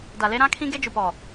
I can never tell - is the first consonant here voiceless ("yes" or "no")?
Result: no